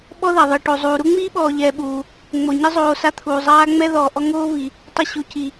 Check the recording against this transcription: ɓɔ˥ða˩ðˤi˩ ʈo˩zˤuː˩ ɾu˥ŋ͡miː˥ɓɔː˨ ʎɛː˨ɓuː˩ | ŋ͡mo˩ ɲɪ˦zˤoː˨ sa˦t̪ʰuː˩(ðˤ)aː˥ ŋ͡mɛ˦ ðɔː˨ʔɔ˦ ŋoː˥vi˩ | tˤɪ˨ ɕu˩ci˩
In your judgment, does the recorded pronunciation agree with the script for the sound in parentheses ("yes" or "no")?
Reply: no